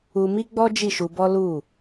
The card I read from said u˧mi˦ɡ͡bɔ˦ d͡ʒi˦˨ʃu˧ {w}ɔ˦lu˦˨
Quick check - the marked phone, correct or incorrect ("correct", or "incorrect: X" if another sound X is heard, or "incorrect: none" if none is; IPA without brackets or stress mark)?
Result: incorrect: b